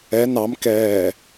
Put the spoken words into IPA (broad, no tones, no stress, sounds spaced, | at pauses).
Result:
ɛ n ɑ m k ɛː